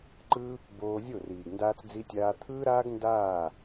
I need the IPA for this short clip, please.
ǃ ɯ˦ | b oː˧ zʲ o˦˨ r iː˨ ɡ n d aː˦ t͡s d͡z i˦ tʲ aː˦ t̪ʰ ɯː˦ ɾ aː˦ ɡ n d aː˦˨

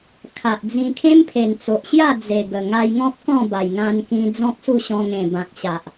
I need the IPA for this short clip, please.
kʰ a˨ ʔ d͡z ĩ˧ kʰ ẽ˦ m pʰ e˨˩ n t͡s o˨ ʔ ɕ j a˥˧ d͡z e˨˩ ɡ ə˨˩ ŋ a˧ j ŋ ɔ̃˦ p̚ k ɔ̃˥˧ b a˨˩ j ŋ ã˧ n k ĩ˧ d͡z ɔ̃˦ k̚ s u˥˧ ɕ ɔ̃˧ ŋ ẽ˨˩ b ã˨ k̚ ɕ a˨ ʔ

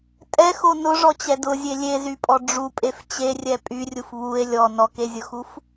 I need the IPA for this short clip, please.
tʼ ɛ x o n ʊ ʐ ɔ t͡ɕ ɛ d ʊ zʲ e lʲ e z y pʼ ɔ ɖ͡ʐ u pʼ e f t͡ɕ e rʲ ɛ pʼ y rʲ u f β u e̯ lʲ ɔ n ɔ k e zʲ ʊ x u f

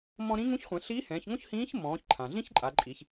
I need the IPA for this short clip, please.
m ɔ̃˧ ɾ ĩ˧˥ ŋ ũ˧˥ ç χʷ ɛ̃˩˧ ɬ iː˧˥ h ɛ̃ː˩˧ ç ŋ õ˥ ç h ĩː˧˥ ç m ɔ̃ː˩˧ ç ǃʰ ã˩ ɮ ĩ˥ ç ǃʼ a˩˧ ǃʼ i˩˧ ç

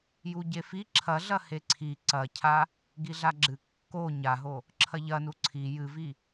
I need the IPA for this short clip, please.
j u ɟ e f i ǁʰ ɐ ɮ ɐ h e ǀʰ i ǀ ɐ cʰ a | ɡ i ɮ a ɡ͡ǁ ɨ kː o ɲ a ɦ o | ǁʰ ɐ ʎ ɐ n u ǀʰ i j ɨ v i

